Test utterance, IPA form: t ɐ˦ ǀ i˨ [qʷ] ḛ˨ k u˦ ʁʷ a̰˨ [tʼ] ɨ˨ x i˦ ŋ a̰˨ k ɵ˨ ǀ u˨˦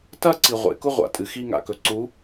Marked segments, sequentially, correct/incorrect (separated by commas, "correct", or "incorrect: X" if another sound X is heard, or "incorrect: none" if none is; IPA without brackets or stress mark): incorrect: ʁʷ, correct